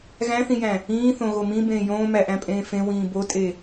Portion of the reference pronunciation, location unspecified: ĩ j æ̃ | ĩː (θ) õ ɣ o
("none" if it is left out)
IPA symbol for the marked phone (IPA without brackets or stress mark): θ